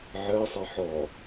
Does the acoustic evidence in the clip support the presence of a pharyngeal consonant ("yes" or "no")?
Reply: yes